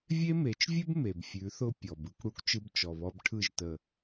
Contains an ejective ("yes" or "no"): no